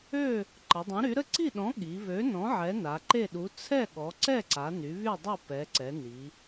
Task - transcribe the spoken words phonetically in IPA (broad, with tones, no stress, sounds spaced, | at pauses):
ø˥˨ | ǃ ə˩˧ dˤ œ̃˨˥ ɾ y˨˥ ɾ ə˥˨ ǀ i˥˨ ɗ ɔ̃˨˥ ɠ i˩˧ β ø˨˥ n ɔ̃˨˥ ʕ ɛ˨˥ n a˩˧ ǃ e˥˨ ɗ u˨˥ t͡sʰ ɛ˥˨ ɠ ɔ˩˧ ǀ ɛ˥˨ ǀ a˩˧ n y˩˧ β y˥˨ dˤ u˥˨ p ɛ˩˧ ǀ ɛ˩˧ n i˩˧